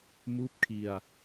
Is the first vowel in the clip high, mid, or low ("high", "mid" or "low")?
high